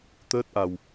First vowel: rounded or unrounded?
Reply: unrounded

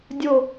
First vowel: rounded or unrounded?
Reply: rounded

